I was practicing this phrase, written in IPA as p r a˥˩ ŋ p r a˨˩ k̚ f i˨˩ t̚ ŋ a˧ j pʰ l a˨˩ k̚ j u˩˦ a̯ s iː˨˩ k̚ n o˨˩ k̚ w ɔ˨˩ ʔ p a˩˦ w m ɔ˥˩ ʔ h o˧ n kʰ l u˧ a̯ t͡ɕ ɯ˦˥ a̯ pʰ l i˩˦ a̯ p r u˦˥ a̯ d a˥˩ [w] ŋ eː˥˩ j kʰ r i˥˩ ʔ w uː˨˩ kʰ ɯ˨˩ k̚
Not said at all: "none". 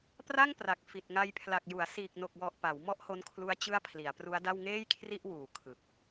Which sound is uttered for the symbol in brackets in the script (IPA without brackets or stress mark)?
w